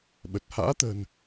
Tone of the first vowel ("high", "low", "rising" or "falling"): low